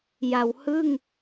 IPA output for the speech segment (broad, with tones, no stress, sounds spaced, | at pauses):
j a˩˦ w h ɯ˥˩ ŋ